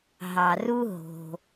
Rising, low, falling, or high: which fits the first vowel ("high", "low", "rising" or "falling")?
low